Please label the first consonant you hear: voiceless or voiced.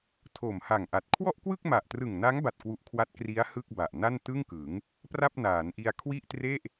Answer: voiceless